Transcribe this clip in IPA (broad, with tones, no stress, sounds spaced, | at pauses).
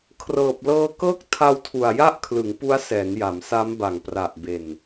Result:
kʰ r ɤː˨˩ p̚ l ɤː˧ k ɤː˦˥ k̚ tʰ a˧ w tʰ u˨˩ a̯ j a˥˩ ʔ kʰ l ɯ˩˦ ŋ p u˦˥ a̯ s ɛː˩˦ n j a˩˦ m s a˦˥ m b a˨˩ ŋ p r a˨˩ ʔ b e˨˩ n